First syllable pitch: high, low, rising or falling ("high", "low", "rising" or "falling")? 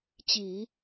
low